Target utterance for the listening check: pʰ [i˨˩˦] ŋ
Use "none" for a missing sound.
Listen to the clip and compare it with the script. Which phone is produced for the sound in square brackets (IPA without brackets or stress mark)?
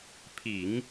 i˨˩˦